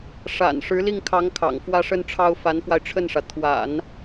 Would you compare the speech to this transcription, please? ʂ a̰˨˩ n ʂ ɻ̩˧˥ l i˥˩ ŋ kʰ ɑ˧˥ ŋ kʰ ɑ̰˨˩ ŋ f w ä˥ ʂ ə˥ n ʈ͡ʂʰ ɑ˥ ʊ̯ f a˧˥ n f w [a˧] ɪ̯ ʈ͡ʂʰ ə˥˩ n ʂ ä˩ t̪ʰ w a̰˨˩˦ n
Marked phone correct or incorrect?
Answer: correct